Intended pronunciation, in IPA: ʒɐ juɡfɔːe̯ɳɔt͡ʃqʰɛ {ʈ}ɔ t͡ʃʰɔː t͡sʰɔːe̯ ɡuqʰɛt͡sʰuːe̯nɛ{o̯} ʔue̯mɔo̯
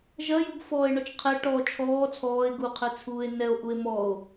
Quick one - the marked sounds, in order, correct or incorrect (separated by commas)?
correct, correct